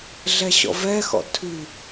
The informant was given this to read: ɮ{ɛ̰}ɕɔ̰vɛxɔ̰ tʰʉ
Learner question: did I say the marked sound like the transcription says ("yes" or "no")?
no